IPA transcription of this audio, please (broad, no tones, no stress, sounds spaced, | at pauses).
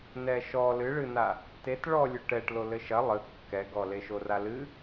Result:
n ɛ ʃ ɔ l ɨ ɭ ɨ n a | t e t ɭ ɔ lʲ u ʈ ɛ ʈ l o l ɘ ʃ ɐ lˠ ɨ kː ɛ ɡ ɔ l e ʃ o r a l ɨ